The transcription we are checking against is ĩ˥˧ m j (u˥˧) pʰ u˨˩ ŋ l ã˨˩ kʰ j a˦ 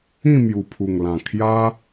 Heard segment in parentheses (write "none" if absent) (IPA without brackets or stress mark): u˨˩